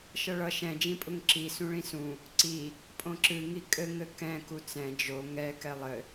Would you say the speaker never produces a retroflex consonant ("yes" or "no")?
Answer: no